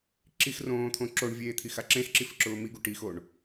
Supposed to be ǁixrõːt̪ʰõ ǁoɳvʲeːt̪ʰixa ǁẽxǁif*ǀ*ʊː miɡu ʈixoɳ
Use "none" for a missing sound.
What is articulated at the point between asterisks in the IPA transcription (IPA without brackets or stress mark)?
ǁ